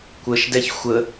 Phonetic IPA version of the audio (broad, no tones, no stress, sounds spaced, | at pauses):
kʷ ə ʃ d ɛ ç xʷ ə